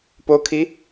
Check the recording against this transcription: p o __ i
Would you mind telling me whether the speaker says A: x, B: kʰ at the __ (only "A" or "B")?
B